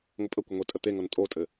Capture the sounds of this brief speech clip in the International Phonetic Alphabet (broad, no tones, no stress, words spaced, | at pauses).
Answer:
ŋʷəpʼəkʷɘ ŋʷetʼət̪eŋɤn tʼotʼɘ